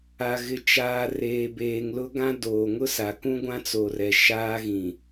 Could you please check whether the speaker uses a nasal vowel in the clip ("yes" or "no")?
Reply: yes